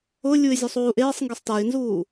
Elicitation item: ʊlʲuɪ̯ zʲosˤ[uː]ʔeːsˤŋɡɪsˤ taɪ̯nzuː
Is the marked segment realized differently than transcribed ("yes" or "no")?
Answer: no